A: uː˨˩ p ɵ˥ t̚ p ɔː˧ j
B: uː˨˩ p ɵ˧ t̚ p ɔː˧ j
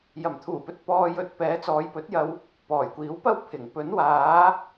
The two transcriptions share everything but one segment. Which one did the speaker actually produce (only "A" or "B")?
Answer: B